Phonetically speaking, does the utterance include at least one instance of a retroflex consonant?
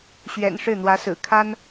yes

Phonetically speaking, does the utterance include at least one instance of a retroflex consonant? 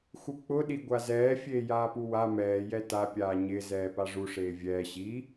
yes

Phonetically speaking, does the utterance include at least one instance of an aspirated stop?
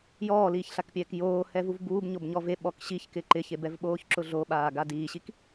no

